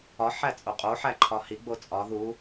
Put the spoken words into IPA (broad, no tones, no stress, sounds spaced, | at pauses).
ɒ ħ æ t͡sʼ o qʼ o ħ æ ǃʰ ɒ h i ɡ͡b o t͡sʼ ɒ ð u